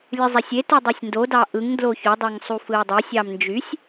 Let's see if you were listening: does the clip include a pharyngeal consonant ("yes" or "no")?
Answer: no